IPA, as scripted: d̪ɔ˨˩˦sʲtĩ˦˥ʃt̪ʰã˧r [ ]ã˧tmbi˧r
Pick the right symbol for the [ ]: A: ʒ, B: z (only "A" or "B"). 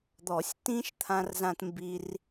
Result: B